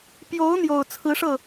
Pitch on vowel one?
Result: rising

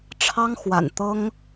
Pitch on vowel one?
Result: high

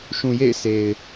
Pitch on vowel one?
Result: low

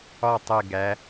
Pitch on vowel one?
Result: falling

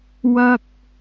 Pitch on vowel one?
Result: high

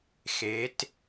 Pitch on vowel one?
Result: rising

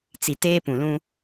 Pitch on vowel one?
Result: low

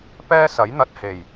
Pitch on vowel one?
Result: high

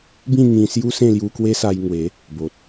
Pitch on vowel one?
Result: falling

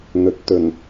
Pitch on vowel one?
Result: rising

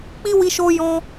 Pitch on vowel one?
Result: high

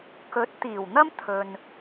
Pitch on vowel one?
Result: rising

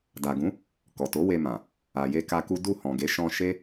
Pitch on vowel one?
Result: low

